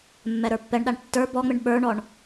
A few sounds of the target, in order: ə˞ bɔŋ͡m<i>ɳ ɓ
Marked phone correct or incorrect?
incorrect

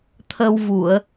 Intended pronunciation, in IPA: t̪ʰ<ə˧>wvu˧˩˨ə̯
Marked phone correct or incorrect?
correct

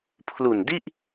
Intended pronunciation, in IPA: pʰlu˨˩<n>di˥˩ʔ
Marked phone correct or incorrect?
correct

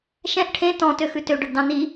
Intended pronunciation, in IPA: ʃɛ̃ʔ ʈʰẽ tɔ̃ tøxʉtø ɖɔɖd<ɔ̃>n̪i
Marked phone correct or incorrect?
incorrect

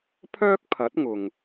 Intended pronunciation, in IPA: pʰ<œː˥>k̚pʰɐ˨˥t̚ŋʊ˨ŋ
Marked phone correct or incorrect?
correct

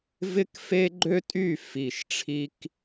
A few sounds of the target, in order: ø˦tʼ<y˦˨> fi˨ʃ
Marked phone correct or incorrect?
correct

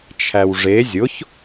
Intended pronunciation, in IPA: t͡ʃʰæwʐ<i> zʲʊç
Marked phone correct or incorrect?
incorrect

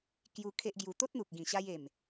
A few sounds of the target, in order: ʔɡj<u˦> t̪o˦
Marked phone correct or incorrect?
incorrect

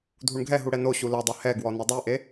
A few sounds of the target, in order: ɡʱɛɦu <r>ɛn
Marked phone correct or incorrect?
incorrect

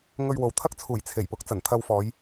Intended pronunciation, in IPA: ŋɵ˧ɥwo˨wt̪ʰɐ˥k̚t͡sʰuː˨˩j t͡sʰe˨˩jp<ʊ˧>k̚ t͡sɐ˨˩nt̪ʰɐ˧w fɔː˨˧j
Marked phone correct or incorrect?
incorrect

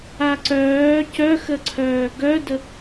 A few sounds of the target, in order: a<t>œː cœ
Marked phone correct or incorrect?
incorrect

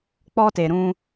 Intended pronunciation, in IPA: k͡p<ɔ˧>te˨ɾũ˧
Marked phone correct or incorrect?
correct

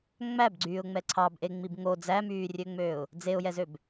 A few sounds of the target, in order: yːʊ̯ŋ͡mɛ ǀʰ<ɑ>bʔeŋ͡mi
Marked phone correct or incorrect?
correct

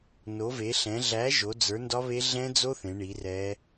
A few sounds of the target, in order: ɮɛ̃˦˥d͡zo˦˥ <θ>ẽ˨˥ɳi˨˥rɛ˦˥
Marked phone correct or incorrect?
correct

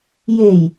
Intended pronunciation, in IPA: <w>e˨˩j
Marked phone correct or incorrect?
incorrect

